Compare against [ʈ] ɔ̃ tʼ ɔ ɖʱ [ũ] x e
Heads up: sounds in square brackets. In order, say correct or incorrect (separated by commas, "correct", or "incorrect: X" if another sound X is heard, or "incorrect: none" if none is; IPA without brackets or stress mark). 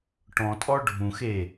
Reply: correct, correct